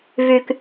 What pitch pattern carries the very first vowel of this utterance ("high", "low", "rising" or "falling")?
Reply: low